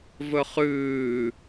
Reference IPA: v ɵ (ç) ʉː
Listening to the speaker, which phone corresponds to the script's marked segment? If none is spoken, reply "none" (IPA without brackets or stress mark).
χ